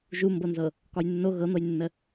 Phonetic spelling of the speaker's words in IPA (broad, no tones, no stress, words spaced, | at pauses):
ʒumbɤnzɤ | kɒjnːo ɣɤn̪ɤjnːə